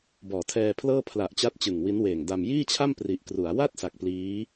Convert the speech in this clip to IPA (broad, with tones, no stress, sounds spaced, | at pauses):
b ɔː˩˦ tʰ ɛː˧ pʰ l ɤː˥˩ pʰ l a˨˩ ʔ t͡ɕ a˦˥ t̚ t͡ɕ ɯ˨˩ ŋ w i˦˥ n w eː˨˩ ŋ d a˧ m j iː˥˩ t͡ɕʰ a˥˩ m p r i˨˩ ʔ k r u˩˦ a̯ w a˥˩ t̚ s a˨˩ k̚ p l iː˦˥